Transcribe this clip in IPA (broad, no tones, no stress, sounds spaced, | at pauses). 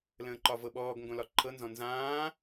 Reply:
l ə̃ː ǃ ɒ v ɤ ɓ ɔː ɡ ŋ ɡ õ l ɒ ǃʰ ɤ n z ɔ̃ n z ãː